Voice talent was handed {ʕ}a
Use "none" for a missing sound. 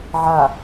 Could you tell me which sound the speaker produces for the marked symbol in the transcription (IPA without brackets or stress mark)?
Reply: ʕ